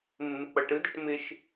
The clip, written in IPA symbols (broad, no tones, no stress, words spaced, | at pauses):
mːɪk͡pʌʈɯdəʈ mɪʃ